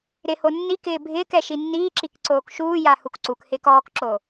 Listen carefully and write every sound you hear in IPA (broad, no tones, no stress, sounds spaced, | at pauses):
ɾ ɪ h o nː i k ɪː bʱ ɪː k ɛ ʃ i nː iː ǁ i k ǀ oː k ʃ uː j a h u k ǀ u k h ɪː k ɔː k ǁ o